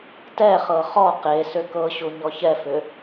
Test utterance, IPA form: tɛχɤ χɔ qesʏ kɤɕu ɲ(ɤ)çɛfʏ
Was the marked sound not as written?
yes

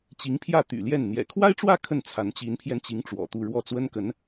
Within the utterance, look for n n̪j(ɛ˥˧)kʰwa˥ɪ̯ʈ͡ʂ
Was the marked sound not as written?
yes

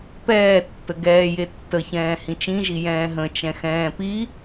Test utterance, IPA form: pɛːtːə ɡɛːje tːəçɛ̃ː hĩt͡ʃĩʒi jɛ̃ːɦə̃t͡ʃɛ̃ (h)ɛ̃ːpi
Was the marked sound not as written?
yes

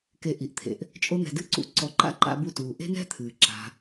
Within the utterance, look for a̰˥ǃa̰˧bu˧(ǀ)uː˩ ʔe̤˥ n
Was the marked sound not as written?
yes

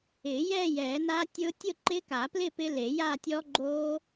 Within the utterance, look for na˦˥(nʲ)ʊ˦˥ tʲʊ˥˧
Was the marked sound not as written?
yes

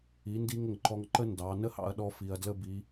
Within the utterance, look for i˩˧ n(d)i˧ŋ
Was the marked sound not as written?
no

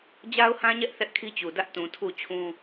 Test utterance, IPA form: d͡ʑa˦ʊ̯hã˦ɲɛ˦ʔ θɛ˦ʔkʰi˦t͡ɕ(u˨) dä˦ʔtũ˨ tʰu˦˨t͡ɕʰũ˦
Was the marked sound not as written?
no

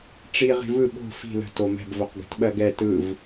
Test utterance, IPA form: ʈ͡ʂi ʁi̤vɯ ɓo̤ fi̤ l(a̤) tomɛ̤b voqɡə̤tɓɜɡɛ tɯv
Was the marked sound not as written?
yes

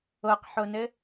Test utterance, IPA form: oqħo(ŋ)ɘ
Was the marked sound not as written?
yes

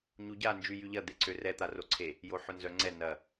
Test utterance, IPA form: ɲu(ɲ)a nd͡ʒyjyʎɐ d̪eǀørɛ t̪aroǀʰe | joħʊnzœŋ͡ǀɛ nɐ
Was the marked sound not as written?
yes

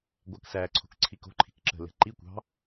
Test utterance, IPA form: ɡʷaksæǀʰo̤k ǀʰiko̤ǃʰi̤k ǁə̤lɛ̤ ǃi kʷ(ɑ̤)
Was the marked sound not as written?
no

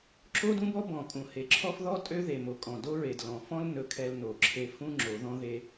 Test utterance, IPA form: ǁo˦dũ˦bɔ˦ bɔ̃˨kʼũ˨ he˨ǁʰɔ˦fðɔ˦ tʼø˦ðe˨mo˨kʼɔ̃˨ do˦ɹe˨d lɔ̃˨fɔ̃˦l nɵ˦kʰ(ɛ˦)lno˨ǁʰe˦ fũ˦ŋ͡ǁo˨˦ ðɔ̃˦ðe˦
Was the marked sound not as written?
no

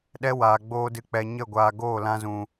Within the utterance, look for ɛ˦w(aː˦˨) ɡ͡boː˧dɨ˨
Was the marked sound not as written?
yes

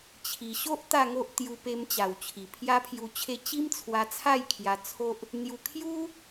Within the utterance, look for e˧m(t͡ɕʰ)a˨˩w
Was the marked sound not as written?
yes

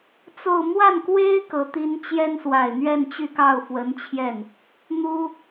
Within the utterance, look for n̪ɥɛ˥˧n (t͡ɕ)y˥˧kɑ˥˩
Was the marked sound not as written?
no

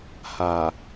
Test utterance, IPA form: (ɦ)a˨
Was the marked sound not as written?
yes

